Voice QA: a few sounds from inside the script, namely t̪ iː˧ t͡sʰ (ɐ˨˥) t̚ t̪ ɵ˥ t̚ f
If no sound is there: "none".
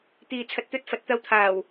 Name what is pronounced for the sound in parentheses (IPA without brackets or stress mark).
ɐ˧